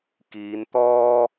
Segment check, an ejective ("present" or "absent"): absent